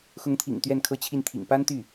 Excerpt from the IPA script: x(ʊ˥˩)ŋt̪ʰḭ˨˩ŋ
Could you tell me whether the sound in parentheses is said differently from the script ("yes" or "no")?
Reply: yes